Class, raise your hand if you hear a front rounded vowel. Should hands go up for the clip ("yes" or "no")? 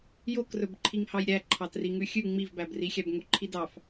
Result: no